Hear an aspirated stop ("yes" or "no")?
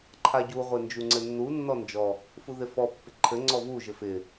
yes